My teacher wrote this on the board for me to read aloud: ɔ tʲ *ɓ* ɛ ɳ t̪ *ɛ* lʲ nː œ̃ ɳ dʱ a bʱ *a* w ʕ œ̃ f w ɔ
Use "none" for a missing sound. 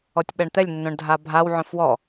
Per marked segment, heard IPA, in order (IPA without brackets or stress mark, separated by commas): ɓ, ɛ, a